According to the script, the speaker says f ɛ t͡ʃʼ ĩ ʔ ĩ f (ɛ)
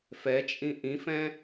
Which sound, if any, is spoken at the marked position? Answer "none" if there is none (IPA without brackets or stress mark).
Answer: ɛ̃